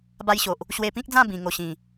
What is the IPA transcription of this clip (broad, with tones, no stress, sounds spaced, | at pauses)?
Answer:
b a˦ j ɕ o˨ ʔ | ɕ w e˧ p ĩ˦ k̚ d͡z ã˥˧ b ĩ˧ ŋ o˧ ɕ ĩ˨˩